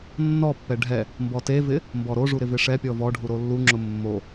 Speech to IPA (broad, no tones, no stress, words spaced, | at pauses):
nːɔpːɛ ɖʱɛ | mbɔtevɪ | mbɔɾoʐu ɾɪvɪʂɛpʲɔ vɔɖʱu ɾolːuŋ͡ǁʊ mːo